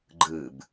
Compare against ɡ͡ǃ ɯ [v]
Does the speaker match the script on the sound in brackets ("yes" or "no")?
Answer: no